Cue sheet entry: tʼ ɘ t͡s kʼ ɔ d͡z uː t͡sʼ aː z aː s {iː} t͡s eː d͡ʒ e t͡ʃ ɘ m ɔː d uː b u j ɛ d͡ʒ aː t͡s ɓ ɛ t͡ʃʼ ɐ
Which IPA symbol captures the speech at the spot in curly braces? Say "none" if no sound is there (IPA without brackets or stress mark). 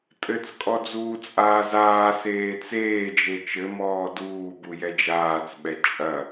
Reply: eː